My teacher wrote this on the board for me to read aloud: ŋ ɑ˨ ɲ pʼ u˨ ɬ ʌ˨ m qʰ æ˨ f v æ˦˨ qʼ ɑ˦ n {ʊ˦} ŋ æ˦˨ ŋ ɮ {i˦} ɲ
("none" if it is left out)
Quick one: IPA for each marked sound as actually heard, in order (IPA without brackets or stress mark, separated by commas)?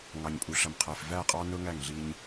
ʊ˦, i˦